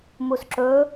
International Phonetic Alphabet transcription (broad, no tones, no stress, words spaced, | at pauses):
musǁɵ